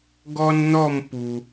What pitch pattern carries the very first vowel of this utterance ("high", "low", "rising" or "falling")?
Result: high